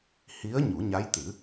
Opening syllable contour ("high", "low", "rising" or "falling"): rising